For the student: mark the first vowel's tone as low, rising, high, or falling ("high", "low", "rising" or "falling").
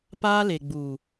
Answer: high